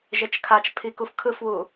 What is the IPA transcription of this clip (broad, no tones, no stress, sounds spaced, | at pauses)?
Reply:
ʒ e t͡ʃ kʰ a t͡ʃ pʰ i k u f kʰ ɯ f w u